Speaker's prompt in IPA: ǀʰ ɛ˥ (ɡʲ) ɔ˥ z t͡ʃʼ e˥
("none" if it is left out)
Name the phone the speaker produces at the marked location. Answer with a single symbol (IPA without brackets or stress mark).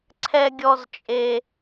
ɡʲ